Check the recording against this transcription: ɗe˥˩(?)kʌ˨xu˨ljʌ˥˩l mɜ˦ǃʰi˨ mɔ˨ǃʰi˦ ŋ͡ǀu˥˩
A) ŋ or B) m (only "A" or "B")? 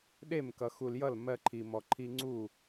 B